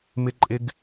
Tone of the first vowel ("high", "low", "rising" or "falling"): high